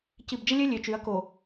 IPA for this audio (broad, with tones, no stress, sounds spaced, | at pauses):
c i˨ b d͡ʒ ə˦ lʲ œ˦ lʲ ø˨ t͡ʃ y˨˦ ɐ̯ k o˨